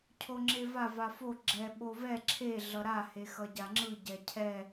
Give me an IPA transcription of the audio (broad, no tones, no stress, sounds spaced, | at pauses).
cʰ o ŋ͡ǁ e v a v a f o ɡ͡ǁ ɛ ɓ o v ɛ ǁʰ e ɮ ʌ ɾ a h e x ʌ ɟ a ŋ͡ǁ ɯ ɟ ɛ cʰ ɛ